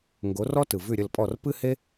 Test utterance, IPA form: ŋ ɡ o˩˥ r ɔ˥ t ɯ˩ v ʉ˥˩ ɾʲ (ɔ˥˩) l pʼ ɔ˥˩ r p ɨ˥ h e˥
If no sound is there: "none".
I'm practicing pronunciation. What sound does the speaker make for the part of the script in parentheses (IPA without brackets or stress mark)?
ə˥˩